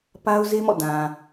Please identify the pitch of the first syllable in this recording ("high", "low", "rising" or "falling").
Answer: high